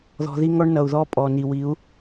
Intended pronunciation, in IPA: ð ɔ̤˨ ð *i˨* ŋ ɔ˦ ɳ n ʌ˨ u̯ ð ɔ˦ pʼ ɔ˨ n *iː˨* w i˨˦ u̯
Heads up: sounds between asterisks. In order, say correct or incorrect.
incorrect: i˦, incorrect: i˨

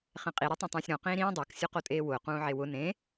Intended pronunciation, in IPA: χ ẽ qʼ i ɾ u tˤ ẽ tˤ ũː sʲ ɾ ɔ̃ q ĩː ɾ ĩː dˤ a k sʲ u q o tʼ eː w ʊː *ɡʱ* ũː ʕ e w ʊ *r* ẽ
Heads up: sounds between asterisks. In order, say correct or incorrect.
incorrect: q, incorrect: n

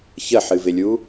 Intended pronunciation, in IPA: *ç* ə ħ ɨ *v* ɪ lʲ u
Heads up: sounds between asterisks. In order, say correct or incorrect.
correct, correct

